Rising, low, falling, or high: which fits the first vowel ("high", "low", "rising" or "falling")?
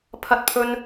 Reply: high